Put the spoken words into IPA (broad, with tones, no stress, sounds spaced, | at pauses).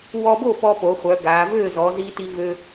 w ɔ˧ b o˥˩ p ɔ˧ p o˩˧ χʷ œ˩˧ ɡ a˩˧ v ø˥˩ z ɔ˩˧ z i˧ t i˧ v ø˧